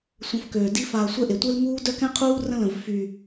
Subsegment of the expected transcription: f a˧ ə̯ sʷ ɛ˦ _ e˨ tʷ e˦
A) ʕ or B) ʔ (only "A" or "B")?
B